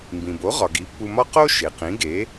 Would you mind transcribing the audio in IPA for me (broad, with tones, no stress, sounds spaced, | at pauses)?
m b ĩ˩ b o˩˥ ʁ ɒ˩ ɡ i˩˥ pː u˧ m ɒ˥ q o˥ ʃ e˩ q ĩ˩˥ ɡ e˩˥